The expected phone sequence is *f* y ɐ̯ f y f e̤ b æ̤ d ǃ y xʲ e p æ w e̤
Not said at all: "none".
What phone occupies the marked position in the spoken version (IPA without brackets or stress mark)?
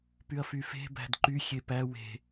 p